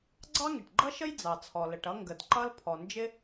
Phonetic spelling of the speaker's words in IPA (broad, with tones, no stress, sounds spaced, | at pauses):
ɡ͡ǀ ɑ˥ ŋ ɪ˩ ʈ ɡ͡ǃ ʌ˥ ʃ ə˥ j d͡z ɑ˩ t͡sʰ ɔ˩ l ə˩ ʈ ʌ˥ ŋ ɡ ə˩ d ǃ ʌ˥ l pʰ ɔ˩ n d͡ʒ ɪ˥